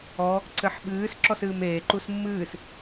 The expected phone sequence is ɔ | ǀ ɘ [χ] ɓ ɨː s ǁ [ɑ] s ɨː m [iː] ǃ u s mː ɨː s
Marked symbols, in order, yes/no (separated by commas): no, no, no